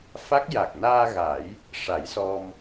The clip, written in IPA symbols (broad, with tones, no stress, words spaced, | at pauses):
fa˦˥k̚ ja˨˩k̚naː˧ɣa˨˩˦j | ʂa˨˩˦jsɔ˧m